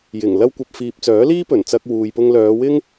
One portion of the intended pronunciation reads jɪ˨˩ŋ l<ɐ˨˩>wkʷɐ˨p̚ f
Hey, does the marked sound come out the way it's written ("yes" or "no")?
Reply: no